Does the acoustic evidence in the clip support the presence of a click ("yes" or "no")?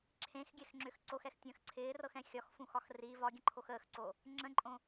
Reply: yes